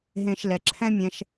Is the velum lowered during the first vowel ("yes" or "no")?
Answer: yes